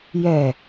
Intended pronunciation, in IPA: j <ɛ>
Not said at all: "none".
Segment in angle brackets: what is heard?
ɛ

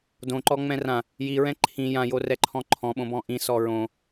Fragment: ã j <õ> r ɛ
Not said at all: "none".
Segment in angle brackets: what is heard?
o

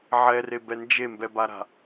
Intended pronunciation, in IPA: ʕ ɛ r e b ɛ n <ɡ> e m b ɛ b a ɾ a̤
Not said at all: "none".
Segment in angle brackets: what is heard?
d͡ʒ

